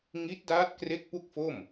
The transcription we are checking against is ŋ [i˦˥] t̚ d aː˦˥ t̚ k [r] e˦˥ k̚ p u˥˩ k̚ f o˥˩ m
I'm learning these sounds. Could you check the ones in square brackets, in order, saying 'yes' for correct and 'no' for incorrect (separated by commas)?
yes, yes